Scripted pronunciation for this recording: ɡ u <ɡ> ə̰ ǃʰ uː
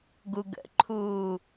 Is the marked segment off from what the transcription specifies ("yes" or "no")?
no